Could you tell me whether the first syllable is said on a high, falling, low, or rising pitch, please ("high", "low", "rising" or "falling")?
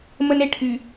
high